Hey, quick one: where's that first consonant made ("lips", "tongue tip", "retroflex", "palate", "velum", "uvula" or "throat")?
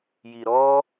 palate